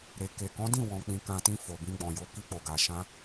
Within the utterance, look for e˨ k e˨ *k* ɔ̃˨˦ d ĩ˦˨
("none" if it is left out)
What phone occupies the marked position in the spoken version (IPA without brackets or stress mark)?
k